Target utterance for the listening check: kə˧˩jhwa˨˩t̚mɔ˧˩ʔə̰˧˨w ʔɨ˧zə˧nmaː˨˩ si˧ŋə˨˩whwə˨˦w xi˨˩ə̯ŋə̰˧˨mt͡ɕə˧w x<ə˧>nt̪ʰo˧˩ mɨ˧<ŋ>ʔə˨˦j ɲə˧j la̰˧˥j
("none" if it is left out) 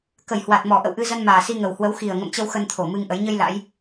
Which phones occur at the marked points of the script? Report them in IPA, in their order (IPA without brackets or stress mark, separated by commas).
ə˧, ŋ